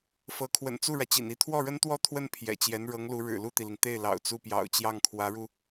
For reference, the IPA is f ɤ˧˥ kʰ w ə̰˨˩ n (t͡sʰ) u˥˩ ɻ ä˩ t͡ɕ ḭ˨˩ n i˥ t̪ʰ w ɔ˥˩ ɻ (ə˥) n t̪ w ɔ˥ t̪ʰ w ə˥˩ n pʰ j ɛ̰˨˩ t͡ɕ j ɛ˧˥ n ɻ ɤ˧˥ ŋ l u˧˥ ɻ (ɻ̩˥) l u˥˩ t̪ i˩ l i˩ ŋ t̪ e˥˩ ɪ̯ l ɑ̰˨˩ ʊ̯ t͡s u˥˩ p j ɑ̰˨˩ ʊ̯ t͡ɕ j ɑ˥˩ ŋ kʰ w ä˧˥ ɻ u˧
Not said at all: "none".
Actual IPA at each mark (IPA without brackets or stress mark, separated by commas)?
t͡s, ə˥, ɻ̩˨˩